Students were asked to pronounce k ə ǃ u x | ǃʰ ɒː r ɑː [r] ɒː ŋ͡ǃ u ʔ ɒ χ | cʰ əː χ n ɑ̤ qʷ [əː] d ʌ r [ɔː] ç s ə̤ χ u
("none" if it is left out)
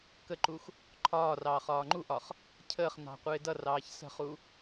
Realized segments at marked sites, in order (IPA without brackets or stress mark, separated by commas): χ, ɪː, ɑː